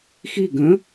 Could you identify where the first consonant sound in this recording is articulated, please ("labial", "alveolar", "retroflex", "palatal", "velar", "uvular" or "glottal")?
velar